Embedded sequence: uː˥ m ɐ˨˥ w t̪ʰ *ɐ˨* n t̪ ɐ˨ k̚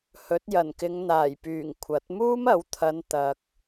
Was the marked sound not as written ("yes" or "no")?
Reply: yes